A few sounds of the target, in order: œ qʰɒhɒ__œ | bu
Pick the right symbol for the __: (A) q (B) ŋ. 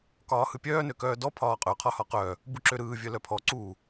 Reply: A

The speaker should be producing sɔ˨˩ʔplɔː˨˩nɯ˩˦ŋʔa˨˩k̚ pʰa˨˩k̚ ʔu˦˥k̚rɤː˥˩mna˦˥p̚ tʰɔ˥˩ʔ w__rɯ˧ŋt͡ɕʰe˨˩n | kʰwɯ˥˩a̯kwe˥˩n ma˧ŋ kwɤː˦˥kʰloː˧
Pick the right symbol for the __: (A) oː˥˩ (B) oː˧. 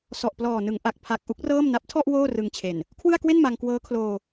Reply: A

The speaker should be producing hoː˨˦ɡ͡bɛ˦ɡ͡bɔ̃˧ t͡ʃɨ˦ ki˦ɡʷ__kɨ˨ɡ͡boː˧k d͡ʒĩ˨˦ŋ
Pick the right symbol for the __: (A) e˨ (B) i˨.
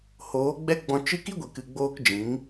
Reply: A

